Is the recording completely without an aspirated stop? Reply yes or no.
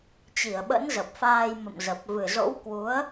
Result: yes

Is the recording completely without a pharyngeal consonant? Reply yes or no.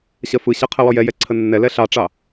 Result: yes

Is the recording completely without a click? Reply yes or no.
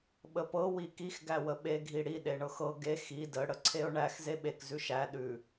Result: no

